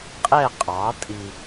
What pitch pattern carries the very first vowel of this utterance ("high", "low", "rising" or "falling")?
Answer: falling